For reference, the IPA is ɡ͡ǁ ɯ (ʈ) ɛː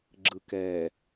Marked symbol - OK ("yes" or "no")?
no